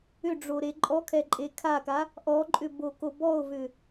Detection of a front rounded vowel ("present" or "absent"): present